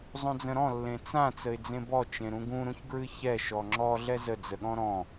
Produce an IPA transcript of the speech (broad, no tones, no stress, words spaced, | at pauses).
zˤũd͡zə̃ɾɔ̃ lːẽt͡sã t͡səɪ̯d͡zẽbɔ t͡ʃẽɾũɡũ ɾũçɡɹɨçɛ ʃɔŋ͡ǁɔ ɮɛzə d͡zəɠɔ̃ɾɔ̃